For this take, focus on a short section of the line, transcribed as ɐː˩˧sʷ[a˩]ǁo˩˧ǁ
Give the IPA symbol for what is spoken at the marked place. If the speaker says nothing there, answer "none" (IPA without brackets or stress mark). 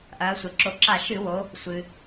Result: ɐ˩